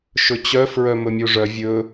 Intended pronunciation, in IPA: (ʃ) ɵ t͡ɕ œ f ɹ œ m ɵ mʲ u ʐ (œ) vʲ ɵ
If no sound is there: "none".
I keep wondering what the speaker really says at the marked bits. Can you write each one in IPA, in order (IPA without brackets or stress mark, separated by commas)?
ʃ, œ